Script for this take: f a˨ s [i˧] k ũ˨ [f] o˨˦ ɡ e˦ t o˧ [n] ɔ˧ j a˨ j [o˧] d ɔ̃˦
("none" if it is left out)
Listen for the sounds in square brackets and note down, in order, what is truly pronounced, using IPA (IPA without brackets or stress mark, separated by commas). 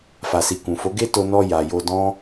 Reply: i˨, f, n, o˧